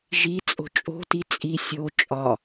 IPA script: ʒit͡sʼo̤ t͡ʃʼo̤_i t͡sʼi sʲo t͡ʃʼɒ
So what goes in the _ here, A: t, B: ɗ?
A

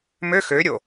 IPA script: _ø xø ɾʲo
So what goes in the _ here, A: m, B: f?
A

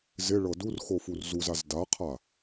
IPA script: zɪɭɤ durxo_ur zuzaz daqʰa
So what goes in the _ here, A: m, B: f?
B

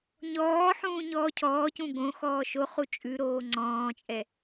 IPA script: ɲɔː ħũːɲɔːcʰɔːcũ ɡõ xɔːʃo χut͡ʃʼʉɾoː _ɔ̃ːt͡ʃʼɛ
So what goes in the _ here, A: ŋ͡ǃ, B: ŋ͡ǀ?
B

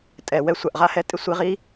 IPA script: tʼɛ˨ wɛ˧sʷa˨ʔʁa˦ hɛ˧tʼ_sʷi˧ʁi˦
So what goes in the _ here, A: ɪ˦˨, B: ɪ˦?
B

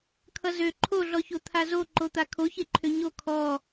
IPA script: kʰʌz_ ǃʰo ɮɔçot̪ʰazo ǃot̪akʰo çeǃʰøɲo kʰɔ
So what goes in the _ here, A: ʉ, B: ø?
B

